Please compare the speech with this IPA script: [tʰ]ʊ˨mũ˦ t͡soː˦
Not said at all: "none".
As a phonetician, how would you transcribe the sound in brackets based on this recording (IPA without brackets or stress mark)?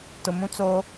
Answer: t